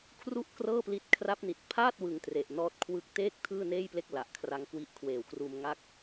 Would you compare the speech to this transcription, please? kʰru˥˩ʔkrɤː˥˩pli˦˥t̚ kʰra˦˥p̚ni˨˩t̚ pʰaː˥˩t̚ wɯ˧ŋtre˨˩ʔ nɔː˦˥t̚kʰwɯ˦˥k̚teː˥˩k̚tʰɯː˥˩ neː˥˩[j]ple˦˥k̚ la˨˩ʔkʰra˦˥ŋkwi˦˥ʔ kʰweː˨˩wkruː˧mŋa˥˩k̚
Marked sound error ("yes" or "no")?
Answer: no